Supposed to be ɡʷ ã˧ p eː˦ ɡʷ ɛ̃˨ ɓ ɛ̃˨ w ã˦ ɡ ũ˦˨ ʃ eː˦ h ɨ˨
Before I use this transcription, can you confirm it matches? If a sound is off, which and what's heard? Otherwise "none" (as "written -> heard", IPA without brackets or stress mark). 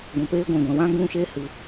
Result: ɓ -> ɡʷ